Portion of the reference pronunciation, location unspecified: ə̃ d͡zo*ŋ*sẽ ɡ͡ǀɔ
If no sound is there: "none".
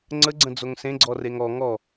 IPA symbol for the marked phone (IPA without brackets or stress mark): ŋ